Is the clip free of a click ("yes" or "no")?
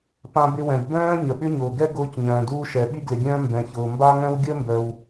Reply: yes